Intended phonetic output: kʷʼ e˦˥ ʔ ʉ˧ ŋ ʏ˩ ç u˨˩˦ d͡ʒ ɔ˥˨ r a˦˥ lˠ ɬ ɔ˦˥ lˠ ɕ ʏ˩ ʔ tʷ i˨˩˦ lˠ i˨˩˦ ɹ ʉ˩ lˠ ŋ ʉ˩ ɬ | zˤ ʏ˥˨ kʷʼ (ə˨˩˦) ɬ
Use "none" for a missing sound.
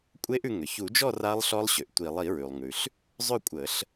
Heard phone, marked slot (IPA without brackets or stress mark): ə˨˩˦